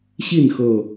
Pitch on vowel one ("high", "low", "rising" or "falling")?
falling